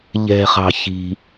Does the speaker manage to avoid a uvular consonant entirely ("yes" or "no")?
no